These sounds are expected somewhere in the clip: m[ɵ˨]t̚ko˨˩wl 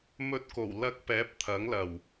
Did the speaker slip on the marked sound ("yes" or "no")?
yes